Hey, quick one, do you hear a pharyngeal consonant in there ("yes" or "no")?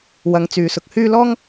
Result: no